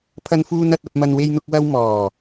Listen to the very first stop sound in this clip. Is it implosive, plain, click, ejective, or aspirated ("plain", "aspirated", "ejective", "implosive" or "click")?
aspirated